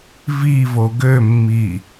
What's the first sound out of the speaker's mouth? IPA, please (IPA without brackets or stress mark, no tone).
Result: v